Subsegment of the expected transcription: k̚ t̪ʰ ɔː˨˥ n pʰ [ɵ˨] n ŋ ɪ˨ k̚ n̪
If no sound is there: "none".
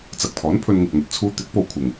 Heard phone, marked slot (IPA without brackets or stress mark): ɵ˧